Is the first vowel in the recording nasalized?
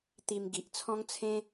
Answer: no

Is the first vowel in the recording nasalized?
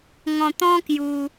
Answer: yes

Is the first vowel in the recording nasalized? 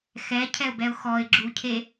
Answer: no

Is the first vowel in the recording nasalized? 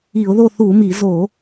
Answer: no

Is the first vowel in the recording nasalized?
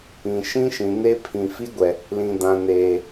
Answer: yes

